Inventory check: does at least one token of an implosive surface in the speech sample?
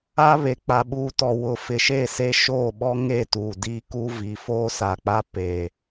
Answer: yes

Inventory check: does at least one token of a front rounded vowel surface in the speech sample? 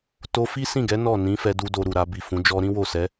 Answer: no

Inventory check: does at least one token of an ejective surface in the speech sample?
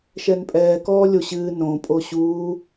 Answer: yes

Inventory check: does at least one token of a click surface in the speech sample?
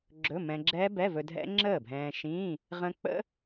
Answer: yes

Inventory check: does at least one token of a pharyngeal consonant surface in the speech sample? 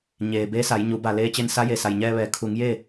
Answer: no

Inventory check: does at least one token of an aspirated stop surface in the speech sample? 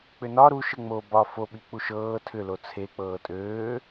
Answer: yes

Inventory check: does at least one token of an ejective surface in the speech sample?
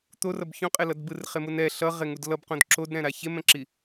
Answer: yes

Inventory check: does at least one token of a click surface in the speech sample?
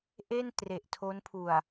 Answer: no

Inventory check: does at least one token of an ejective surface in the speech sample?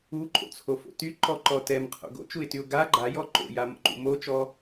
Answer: yes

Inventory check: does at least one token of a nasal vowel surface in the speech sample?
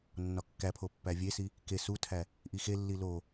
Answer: no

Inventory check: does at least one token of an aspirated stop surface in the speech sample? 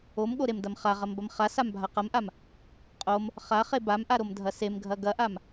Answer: no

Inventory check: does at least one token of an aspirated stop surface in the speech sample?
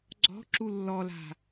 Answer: no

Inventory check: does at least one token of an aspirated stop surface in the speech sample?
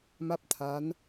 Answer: yes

